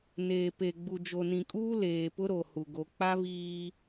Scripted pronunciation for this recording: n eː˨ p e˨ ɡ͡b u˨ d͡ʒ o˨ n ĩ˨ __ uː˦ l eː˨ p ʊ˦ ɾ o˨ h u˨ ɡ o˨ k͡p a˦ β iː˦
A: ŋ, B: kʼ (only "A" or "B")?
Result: B